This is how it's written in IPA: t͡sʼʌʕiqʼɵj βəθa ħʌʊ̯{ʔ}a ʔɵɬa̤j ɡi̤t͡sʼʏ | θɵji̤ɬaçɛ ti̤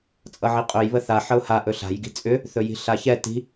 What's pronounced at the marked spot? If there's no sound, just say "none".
h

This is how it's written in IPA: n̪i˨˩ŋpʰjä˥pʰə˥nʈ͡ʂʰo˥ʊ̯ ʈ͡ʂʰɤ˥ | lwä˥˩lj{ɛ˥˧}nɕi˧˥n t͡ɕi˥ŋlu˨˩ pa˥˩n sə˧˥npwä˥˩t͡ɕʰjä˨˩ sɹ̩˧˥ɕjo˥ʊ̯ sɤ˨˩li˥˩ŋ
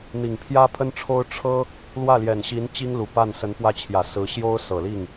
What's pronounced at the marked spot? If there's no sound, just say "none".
ɛ˨˩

